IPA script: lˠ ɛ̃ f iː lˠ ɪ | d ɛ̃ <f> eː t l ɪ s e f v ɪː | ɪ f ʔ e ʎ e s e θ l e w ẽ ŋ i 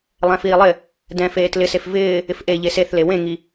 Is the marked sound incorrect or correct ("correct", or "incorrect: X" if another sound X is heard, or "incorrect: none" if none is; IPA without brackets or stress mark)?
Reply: correct